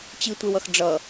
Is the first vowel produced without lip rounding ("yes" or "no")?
yes